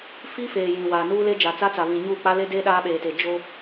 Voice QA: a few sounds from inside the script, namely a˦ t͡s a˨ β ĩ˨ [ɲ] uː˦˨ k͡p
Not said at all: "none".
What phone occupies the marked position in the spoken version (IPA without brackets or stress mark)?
ɲ